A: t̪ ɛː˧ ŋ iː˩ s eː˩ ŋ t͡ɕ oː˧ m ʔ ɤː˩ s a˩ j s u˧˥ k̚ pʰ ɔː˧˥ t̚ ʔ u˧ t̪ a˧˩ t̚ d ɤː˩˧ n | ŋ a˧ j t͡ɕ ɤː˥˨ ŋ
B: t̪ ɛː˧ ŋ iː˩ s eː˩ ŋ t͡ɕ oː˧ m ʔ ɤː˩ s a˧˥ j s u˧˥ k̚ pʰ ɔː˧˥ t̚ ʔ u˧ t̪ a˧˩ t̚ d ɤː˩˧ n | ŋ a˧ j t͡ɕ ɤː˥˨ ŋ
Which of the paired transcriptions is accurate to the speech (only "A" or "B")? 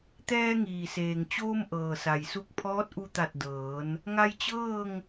A